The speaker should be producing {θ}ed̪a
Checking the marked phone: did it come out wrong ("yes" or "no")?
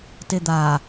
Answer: yes